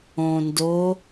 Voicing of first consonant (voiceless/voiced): voiced